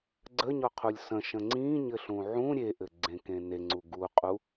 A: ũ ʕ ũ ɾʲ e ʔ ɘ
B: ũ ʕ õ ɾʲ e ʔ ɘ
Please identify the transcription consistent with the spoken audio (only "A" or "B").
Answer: A